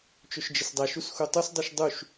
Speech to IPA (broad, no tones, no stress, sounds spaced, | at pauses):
t͡ʃ ɵ ʃ d͡ʒ ɪ s dˤ ɛ ʃ u s x u tˤ u s dˤ u ʃ dˤ u ʃ